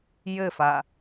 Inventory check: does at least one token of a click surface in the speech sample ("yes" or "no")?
no